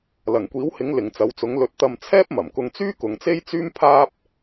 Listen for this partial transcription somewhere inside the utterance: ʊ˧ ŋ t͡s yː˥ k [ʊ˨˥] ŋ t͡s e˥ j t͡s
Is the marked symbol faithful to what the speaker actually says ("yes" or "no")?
no